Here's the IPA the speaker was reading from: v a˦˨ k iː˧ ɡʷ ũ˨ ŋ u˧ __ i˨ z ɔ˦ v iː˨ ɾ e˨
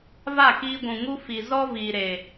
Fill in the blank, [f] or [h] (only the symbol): f